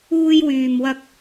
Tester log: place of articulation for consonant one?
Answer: palatal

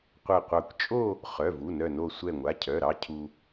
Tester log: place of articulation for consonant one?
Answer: uvular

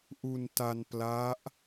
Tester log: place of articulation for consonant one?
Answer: glottal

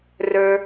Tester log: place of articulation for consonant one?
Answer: alveolar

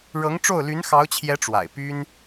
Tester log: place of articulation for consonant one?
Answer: retroflex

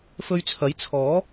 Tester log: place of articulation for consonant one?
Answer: labial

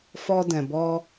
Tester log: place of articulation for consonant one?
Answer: labial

